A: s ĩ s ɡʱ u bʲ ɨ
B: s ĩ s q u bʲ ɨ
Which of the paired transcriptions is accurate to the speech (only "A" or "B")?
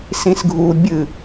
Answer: A